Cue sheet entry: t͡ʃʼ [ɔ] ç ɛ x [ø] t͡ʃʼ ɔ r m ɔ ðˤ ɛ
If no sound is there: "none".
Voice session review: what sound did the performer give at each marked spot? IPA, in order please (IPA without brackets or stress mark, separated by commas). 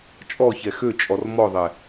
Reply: ɔ, ø